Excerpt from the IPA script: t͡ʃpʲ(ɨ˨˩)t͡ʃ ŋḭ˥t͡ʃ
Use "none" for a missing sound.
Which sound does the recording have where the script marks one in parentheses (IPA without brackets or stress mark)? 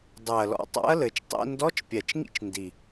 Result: ɛ˨˩